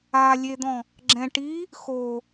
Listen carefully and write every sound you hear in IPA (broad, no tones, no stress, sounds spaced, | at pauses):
a lʲ e d̪ ɔ̃ | ɡ͡ǁ ɛ̃ ʈ i | x o